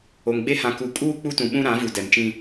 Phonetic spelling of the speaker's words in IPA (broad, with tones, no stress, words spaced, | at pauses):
o˨ŋɡ͡be˦ hã˨ku˨kʼuː˦ k͡pu˦tũ˨ɓũ˦ ɾã˨˦vu˨dɛ˨mt͡ʃĩ˦